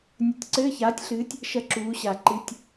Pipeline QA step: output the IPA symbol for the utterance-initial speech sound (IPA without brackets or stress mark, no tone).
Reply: nʲ